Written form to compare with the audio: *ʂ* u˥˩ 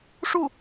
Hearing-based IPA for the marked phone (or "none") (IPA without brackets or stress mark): ʂ